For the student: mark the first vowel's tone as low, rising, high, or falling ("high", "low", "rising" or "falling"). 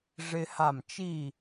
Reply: high